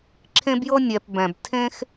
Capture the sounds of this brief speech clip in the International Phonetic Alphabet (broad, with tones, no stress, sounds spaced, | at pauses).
ǁʰ ẽ˥ b j ɤ˥ nʲ ɛ˧ p b ɛ̃˧ b tʰ ẽ˥ x